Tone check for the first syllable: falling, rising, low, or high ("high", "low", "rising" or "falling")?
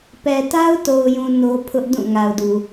low